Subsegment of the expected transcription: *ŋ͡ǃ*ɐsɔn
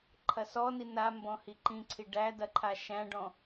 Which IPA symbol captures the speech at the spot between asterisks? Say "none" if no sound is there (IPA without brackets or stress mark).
ǃʰ